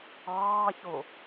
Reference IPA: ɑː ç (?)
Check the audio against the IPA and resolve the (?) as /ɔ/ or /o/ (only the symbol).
o